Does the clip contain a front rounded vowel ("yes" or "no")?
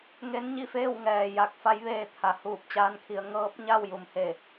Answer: no